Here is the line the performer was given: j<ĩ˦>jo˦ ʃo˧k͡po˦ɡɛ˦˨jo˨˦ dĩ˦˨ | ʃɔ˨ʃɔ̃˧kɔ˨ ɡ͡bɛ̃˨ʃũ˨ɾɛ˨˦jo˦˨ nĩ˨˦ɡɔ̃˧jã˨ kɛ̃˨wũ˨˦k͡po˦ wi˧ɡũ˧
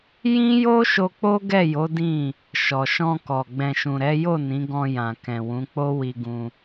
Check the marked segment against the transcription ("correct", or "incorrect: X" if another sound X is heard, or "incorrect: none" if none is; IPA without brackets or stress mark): correct